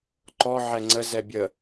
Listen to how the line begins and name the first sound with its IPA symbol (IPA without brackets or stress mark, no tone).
ǃ